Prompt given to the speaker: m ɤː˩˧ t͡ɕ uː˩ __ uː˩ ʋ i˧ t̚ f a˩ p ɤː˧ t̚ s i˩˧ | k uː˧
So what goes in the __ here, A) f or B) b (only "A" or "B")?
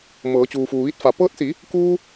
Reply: A